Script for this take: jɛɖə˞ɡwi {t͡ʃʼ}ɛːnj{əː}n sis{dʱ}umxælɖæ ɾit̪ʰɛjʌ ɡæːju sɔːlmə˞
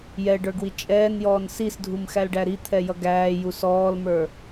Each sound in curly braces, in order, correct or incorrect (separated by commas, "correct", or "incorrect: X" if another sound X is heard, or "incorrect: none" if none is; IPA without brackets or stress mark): correct, incorrect: ɔː, correct